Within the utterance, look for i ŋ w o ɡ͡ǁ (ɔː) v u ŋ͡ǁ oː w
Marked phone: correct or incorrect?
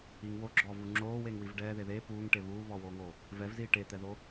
correct